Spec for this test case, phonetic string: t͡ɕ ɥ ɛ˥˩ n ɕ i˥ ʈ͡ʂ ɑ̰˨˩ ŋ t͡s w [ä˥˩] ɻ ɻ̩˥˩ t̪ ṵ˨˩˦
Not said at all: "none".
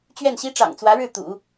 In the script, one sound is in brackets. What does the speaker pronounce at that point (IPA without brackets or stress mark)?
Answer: ä˧˥